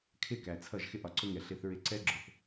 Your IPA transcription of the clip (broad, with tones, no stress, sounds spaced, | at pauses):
kʰ ɪ˦˨ k æ˨ t͡sʰ ʌ˦˨ ʒ x ɪ˦ ʔ ɒ˨ ǀ ʊ˦ ŋ ɛ˨ ɬ ɪ˦ θ ɹ ɪ˦ ǀ ɛ˦ ɡ͡ǁ ʊ˨ θ